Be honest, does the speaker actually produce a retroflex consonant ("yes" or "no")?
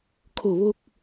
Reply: no